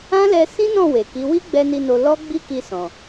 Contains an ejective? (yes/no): no